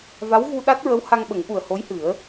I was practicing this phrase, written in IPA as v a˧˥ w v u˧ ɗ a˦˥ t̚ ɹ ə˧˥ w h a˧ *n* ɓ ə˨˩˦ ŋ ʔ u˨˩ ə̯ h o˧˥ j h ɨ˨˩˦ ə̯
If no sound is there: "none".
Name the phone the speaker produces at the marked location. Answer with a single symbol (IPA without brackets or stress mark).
ŋ